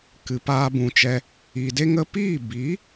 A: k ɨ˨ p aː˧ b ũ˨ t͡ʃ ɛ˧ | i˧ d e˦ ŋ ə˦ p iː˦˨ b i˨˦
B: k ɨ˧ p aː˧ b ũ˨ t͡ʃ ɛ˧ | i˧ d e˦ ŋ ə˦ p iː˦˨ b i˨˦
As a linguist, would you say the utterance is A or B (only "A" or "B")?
A